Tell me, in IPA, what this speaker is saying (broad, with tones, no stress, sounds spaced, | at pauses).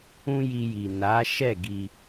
ũ˦ j i˧ j i˨ n a˨˦ ʃ ɛ˦˨ ɡ i˧